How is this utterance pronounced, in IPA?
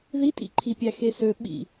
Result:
ð i tʼ ḭ ǃʰ i pʲ æ x e s ø ɓ ḭ

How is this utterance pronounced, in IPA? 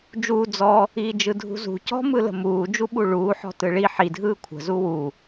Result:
d͡ʒ uː d͡z ɔ | iː d͡ʒ ɯ dʱ ṳ z ṳ c ɔ̤ m ɯ l ə̤ m uː d͡ʒ u ɓ u ɭ uː ħ ɔ̤ t ɯ ɭ i ħ i dʱ ɯː kʷʰ ə̤ z u w u

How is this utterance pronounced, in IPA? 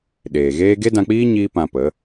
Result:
ɗ eː˨ ɣ eː˦ ɡ e˦ d ã˧ k͡p iː˦ ɲ iː˦ p ã˧ p ə˨˦

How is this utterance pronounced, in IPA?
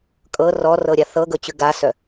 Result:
kʼ ɤ r ɔ r ɤ ɾʲ a θ ɤ ɡ ɤ t͡ɕ ʉ ɡ a s œ

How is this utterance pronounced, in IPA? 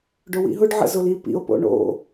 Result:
ɖ ʊ w ḭ ɦ ʊ ɖ ʕ ə̰ z ʊ l i p ḭ o̯ p o̰ ɳ o̰

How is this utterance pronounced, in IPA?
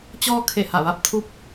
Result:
t͡ɕ ɔː˧ kʰ e˧˩ h a˧˩ ʋ a˥˨ p̚ t̪ʰ u˥˨ p̚

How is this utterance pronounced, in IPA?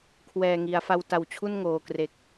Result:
kʰ w ɛː˨˩ ŋ i˩˦ a̯ f a˧ w t a˨˩ w t͡ɕʰ u˥˩ n ŋ oː˨˩ k r e˨˩ k̚

